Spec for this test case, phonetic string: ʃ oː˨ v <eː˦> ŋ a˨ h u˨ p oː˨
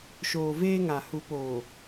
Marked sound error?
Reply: no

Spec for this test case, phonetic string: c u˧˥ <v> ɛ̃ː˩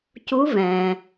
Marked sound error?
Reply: no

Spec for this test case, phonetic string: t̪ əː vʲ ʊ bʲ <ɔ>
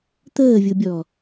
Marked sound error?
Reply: no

